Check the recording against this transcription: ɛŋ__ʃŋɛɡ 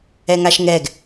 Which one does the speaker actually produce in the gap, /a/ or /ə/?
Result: a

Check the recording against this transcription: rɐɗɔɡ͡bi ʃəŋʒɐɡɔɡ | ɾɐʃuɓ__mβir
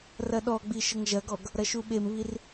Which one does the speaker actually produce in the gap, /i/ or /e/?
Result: e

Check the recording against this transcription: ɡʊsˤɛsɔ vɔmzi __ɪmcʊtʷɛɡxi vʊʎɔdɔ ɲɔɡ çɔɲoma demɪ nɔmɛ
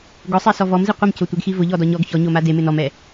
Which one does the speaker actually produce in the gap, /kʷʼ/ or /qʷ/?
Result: qʷ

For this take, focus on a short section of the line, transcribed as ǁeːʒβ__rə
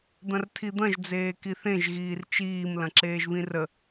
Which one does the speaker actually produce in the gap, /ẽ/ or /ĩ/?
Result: ĩ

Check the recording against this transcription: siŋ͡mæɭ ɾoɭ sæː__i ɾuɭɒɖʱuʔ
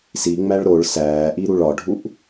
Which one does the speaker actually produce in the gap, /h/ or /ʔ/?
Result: ʔ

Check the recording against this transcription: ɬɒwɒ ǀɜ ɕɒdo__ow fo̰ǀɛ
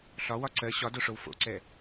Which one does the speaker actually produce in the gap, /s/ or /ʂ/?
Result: ʂ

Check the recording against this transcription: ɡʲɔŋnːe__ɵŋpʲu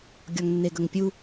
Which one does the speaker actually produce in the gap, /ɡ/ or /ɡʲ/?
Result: ɡ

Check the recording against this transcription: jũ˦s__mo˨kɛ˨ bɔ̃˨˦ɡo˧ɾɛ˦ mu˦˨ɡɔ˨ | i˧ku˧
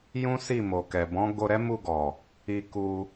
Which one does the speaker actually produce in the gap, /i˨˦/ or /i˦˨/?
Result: i˦˨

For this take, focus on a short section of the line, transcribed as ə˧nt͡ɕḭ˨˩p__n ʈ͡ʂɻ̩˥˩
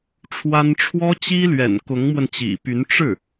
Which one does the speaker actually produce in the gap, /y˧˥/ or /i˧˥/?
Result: y˧˥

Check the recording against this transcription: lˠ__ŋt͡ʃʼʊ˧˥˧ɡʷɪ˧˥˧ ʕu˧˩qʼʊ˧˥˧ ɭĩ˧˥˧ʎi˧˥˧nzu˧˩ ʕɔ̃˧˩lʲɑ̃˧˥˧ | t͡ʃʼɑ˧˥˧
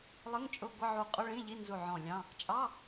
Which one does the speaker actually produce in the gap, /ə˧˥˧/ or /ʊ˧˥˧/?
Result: ə˧˥˧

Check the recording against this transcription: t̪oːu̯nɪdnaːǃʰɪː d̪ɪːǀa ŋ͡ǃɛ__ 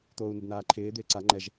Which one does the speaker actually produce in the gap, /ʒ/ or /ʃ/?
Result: ʒ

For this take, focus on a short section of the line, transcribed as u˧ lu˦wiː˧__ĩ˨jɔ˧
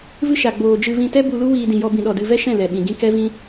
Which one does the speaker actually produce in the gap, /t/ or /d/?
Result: d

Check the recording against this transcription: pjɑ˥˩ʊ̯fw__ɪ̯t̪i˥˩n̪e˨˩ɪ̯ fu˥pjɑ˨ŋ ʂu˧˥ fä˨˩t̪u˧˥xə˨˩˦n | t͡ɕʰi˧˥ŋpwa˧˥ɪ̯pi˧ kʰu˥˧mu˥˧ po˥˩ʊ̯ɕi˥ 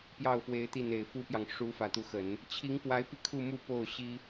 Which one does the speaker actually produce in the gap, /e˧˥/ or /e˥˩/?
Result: e˧˥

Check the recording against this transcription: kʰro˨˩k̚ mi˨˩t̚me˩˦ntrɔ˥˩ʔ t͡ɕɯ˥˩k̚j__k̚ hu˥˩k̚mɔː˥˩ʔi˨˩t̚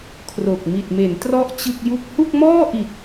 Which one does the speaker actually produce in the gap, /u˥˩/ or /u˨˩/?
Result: u˥˩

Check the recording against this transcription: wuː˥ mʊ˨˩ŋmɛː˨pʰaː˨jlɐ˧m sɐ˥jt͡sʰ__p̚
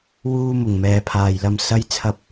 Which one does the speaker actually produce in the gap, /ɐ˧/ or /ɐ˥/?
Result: ɐ˥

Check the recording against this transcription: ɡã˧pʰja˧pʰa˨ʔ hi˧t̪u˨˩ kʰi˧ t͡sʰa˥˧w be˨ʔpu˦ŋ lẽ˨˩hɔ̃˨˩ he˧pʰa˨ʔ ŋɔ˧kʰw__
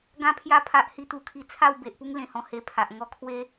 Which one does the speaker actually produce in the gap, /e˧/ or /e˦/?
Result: e˦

